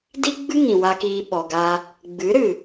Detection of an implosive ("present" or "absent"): present